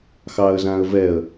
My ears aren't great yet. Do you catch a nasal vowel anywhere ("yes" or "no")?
yes